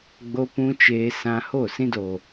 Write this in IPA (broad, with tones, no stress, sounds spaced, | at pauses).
ɡ͡b o˧ p ũ˧ t͡ʃ eː˧ s ã˧ h o˦˨ s ĩ˧ d o˨